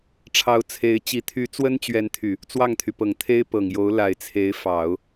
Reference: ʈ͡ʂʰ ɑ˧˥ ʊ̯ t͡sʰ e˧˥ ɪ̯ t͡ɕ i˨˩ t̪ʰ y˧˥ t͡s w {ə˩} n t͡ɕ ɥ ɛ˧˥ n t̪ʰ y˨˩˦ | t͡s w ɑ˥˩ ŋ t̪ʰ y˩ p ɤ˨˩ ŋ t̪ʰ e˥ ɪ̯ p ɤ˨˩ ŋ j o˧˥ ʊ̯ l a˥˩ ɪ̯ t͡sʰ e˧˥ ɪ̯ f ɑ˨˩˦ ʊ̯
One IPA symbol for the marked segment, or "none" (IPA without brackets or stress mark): ə˥